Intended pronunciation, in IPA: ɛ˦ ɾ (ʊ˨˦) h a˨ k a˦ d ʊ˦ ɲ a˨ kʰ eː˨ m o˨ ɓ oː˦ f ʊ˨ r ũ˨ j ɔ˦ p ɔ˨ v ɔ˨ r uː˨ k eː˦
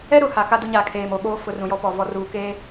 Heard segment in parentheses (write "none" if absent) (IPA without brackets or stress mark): ʊ˨